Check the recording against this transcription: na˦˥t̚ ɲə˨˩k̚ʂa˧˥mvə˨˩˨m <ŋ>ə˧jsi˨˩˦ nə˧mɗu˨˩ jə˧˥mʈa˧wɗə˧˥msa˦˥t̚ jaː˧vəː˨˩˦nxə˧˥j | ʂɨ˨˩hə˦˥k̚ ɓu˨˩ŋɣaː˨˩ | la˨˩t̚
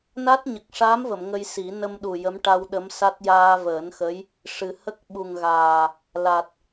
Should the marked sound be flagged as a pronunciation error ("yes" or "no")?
no